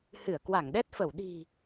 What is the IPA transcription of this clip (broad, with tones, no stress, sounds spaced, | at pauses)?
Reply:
h ɨ˧˩ ə̯ k w a˧˩ ŋ ɗ ɛ˦˥ t̚ f ə˧˩ w ɗ i̤˨˩